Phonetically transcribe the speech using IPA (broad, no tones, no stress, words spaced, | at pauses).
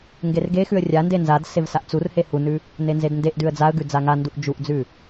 ŋɡerɡexʉə̯ rʲande nzad sevsaʔt͡surhe hunʉ | nenzedndeʔdʉə̯ d͡zaə̯ɡʉ d͡zaŋanduʔ d͡ʒuʔd͡zʉ